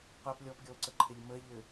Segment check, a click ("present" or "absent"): present